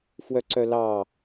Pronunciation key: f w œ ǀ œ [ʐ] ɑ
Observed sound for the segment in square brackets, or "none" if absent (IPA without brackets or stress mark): l